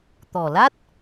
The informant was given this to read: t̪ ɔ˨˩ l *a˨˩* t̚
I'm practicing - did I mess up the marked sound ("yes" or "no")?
yes